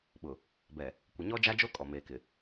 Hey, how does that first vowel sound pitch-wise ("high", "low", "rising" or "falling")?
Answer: low